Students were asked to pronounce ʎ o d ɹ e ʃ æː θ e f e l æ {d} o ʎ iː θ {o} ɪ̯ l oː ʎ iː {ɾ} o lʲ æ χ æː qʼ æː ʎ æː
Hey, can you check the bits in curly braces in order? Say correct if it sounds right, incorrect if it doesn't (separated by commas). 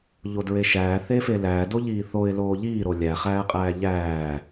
correct, correct, correct